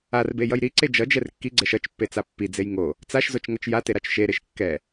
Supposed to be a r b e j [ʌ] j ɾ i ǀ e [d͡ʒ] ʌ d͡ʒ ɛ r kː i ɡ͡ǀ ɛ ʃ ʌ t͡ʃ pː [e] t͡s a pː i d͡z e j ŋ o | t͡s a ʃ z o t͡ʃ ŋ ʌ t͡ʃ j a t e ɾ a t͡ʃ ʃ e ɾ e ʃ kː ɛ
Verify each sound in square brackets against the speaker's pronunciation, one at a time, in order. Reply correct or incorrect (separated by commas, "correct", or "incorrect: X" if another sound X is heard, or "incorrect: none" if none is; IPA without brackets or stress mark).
correct, correct, correct